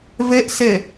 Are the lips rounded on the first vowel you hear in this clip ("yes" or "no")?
no